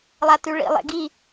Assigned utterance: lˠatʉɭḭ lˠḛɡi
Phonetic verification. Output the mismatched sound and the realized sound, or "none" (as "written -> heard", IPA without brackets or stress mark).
none